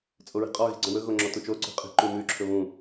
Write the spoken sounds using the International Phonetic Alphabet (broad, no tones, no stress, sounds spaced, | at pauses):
t͡sʼ o ɹ i̤ qʼ ɔ ɣ i̤ ɡ͡ǀ ɔ̃ w ɵ ɣ o ŋ͡ǁ ɔ t u t͡ʃ o ǀ o̤ qʼ i̤ ǃ ʉ m ʉ ǁʰ ɵ β ũ